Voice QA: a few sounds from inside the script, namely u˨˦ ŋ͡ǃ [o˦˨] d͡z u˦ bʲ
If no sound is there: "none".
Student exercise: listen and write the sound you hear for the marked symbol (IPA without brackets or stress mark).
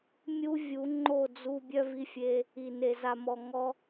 o˦˨